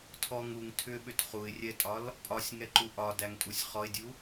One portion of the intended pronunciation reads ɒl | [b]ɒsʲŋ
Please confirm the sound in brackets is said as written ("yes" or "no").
no